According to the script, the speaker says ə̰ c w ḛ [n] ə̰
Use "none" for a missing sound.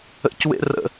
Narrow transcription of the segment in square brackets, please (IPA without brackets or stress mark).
r